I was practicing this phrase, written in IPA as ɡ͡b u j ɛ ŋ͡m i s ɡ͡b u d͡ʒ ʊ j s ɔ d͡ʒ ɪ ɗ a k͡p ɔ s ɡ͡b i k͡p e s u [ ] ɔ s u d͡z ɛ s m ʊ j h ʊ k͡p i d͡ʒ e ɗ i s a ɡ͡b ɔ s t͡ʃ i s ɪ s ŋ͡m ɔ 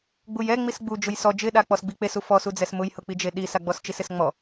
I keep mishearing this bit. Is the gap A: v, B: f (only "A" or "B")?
B